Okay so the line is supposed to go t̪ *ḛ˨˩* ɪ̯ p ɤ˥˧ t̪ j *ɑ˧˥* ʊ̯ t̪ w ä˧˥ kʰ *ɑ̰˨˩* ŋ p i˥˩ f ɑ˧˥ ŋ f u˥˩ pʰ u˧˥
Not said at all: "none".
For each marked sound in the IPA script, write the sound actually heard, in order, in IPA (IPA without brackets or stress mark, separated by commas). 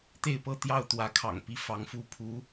e˥˧, ɑ˥˩, ɑ̰˨˩